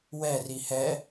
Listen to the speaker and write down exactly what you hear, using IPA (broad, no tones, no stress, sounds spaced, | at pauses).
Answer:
w ɛ r i h ɛ